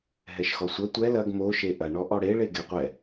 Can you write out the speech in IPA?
ɦ ɛ ʃ x ɔ sʷ ɐ tʷ ɛ l ɐ ɡ m o ʃ e ʔ ɐ ɳ ɔ ʔ ɔ ɽ e ɭ e ɡ ɛ qʷ ɛ

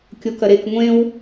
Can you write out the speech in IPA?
kʲ o k ɐ ɾ e k ŋʷ ẽ w

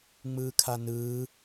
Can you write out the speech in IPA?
ŋ͡m ɯː kʰ a n ɯː

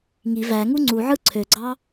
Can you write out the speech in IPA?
ŋ i v æ ŋ u ŋ͡ǀ u ʕ ɯ ǀʰ ø ɡ͡ǀ ɑ

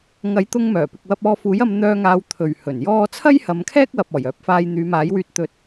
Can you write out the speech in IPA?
ŋ ɐ˨˥ j t̪ ʊ˧ ŋ m œː˨˩ p ɪ˨ k̚ w ɐ˧ p̚ ɔː˧ f uː˨˥ j ɐ˧ m n̪ œː˧ ŋ aː˨˧ w t̪ʰ ɵ˨ ɥ h ɵ˨˩ n j ɔː˥ t͡sʰ ɐ˥ j h ɐ˨˧ m kʰ ɛː˥ k̚ w ɐ˨ p̚ ɔː˨˩ j œː˨˥ p̚ f aː˧ j n̪ yː˨˧ m aː˨˥ j w yː˧ t̚ t̪ ɵ˨˥ t̚

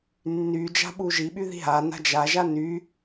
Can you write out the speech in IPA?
nː y d͡ʒ a̤ ɓ u ʒ i ɓ y ð i̤ ɦ a n a̤ d͡ʒ a ʒ a n y

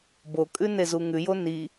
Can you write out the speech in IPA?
b o kʼ ʉ n e z u ŋ ʉ j o n i

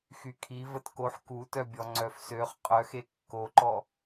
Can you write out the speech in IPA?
x y kʰ i v ə t k o ħ k u t œ bʲ ɔ ŋ͡ǀ œ f s ø χ qʼ œ x e kː o ǃ ɔ

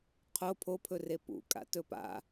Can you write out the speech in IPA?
qʰ o pʰ o pʰ ɵ r e p ṵ kʼ a̰ t ɵ p a̰

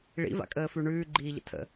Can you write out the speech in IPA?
ɭ ḭ v a̰ kʼ əː f ʉ ɳ ʉː ɡ͡ǃ iː ʎ ə̰ tʰ ə̰

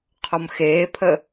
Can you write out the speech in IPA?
qʰ ɔ m x eː pʰ ə

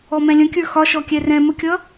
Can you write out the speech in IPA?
ɔ m ɛ̃ lʲ ə̃ kʲ ə˞ x ɒ ʃ ɔ kʲ ɛ r ɛ̃ m ə kʲ ʌ

